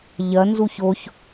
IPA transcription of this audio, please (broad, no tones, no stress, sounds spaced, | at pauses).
ʎ ɐ n z u ç o ç